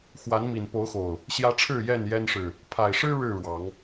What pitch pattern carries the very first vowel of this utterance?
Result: rising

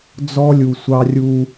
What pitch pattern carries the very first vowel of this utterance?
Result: high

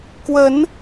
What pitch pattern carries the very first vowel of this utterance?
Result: rising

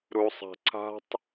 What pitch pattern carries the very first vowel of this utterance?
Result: low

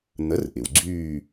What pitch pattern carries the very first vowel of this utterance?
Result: rising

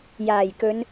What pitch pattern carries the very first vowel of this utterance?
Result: low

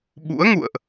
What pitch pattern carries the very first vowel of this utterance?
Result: rising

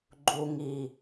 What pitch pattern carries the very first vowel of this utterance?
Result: low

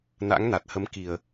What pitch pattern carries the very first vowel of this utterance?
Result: rising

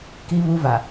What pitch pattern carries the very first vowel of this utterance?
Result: high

